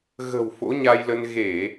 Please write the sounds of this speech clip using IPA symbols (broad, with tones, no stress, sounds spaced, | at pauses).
ɣ ə̤˨˩ w f o̰˧˥ ɲ a˧ j l ə˧ n ɣ e˧˩˨